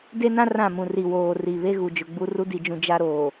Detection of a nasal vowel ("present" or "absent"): present